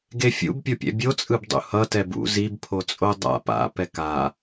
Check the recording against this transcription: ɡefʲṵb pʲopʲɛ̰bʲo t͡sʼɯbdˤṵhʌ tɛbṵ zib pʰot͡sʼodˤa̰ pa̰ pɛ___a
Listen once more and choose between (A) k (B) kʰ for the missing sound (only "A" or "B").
A